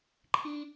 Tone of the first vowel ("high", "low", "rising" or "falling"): high